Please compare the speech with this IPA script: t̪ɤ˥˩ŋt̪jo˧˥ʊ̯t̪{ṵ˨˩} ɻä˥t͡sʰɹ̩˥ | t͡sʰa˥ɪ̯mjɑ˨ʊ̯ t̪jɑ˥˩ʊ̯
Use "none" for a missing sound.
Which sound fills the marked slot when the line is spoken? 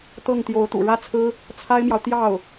ṵ˨˩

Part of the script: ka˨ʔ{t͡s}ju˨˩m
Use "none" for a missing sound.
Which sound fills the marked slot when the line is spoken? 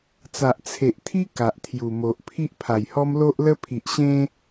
t̪ʰ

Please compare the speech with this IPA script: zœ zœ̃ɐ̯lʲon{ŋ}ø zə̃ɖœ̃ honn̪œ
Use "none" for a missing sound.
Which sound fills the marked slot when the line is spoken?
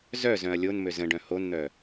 m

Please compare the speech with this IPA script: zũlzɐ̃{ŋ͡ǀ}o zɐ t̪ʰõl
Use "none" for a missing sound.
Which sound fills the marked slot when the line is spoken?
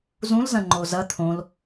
ŋ͡ǃ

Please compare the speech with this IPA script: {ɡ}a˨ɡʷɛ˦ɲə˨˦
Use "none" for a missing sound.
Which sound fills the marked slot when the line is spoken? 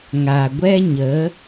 ŋ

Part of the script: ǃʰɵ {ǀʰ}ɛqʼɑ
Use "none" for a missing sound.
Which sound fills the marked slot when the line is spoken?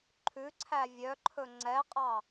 ŋ͡ǀ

